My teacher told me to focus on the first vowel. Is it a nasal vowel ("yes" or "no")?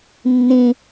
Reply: yes